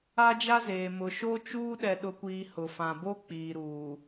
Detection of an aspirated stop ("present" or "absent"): absent